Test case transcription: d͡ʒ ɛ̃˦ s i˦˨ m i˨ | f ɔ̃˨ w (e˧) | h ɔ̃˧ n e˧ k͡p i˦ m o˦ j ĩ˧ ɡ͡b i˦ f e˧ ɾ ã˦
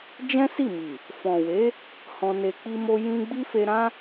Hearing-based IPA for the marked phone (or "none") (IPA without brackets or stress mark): e˨˦